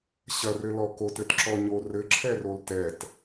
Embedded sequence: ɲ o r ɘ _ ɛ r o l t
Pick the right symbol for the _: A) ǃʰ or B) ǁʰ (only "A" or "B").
B